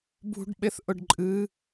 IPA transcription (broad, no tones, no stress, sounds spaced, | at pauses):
b ṳ ɖ ɓ e θ ʔ ʊ ɖ ǃʼ ɨ